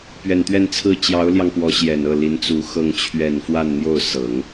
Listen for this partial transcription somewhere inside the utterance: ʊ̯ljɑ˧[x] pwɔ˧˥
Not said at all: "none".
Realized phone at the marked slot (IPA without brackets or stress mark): ŋ